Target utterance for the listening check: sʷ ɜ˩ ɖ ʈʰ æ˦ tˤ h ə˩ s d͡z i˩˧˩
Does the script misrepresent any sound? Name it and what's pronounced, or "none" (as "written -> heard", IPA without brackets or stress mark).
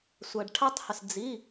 ɜ˩ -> æ˩